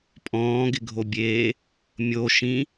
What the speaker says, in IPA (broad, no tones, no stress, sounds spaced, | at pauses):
pʼ ɔ̃ː ɡ ɪ ɡʱ o bʲ eː | mʲ o ʃ ĩ